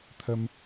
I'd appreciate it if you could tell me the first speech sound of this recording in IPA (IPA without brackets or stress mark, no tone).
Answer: t̪ʰ